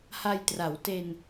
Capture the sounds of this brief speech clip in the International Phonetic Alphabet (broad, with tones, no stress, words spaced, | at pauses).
ha˧jtra˩˦w te˧n